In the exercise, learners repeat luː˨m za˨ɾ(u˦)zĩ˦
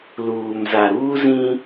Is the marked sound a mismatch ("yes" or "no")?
yes